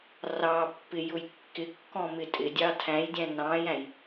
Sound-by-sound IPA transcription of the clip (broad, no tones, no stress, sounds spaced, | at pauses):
r ɑ pː ɪ j ʊ j kː ɪ kː ɔ̃ m ɪ tʼ ɪ dʲ ɑ tʰ æ̃ j dʲ æ̃ n ɑ̃ j æ̃ j